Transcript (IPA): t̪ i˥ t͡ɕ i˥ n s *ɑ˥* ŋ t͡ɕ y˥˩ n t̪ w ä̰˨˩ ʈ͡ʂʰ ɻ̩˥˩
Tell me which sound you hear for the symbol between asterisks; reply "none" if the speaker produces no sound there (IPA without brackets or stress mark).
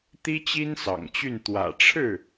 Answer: ɑ̰˨˩